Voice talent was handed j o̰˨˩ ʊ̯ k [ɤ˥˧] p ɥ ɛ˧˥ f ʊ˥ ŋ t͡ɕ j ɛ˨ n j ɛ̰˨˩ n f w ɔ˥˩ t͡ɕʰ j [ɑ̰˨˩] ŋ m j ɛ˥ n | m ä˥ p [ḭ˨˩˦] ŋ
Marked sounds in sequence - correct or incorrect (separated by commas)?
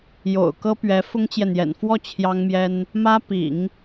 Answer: incorrect, incorrect, correct